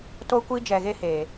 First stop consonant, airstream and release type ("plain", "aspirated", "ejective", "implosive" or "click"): plain